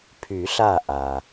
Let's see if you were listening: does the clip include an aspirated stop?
yes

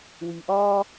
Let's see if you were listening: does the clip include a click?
no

